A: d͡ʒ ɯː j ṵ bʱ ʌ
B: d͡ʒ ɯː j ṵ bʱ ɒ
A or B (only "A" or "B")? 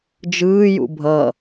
A